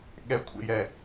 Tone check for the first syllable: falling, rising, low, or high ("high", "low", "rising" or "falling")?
rising